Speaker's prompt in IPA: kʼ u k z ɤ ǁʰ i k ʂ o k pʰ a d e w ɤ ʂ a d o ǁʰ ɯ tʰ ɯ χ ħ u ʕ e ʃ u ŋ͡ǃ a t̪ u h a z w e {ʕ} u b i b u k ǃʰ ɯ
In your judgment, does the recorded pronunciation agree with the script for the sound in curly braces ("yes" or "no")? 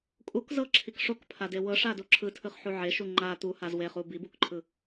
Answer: no